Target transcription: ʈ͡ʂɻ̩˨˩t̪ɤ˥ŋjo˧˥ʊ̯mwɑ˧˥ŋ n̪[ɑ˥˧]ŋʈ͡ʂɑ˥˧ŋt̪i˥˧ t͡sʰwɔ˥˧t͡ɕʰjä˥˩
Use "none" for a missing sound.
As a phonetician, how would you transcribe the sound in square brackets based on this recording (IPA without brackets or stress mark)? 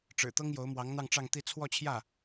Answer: ɑ˥˧